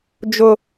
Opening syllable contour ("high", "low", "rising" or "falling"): high